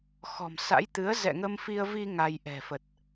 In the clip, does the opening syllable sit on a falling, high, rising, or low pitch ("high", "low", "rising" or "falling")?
low